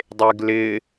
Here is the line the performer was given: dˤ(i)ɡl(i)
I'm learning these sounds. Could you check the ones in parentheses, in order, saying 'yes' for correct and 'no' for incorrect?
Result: no, no

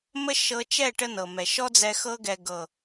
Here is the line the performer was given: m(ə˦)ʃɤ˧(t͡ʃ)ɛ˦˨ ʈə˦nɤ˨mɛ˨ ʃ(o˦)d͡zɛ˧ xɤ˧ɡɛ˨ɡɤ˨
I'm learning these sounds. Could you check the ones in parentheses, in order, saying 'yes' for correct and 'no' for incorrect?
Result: yes, yes, no

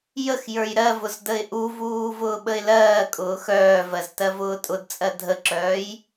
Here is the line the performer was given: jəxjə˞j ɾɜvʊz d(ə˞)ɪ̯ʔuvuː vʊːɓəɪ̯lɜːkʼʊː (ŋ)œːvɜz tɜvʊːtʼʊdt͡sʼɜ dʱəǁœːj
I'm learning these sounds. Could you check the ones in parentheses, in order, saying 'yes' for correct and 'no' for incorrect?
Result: no, no

